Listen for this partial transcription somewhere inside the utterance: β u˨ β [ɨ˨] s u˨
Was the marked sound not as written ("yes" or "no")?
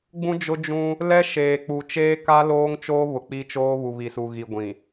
yes